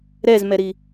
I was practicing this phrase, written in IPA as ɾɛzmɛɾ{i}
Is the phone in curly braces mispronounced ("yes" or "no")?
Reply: no